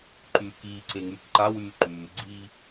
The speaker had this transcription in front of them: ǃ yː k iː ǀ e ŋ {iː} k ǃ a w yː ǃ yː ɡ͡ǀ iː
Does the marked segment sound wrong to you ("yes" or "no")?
yes